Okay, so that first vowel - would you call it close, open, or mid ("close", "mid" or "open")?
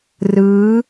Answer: close